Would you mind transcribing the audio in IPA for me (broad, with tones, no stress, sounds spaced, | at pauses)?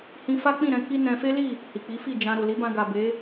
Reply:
h ĩ˧ f a˦ k͡p ĩ˦˨ ɾ ɛ̃˧ k i˦ n ɛ̃˧ f e˦ l i˦˨ | h i˨ k͡p i˨˦ f i˦˨ d͡ʒ ã˨ ɾ o˨ l i˨˦ b ã˧ ɡ a˨ b e˨˦